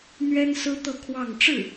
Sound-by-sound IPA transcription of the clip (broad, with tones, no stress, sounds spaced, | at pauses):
n̪ ɥ ɛ˥ n s ɹ̩˥ t̪ ɤ˥˧ kʰ w ɑ˥˧ ŋ ʈ͡ʂ ɻ̩˥˩